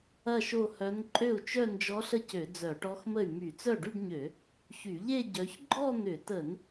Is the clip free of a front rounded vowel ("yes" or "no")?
no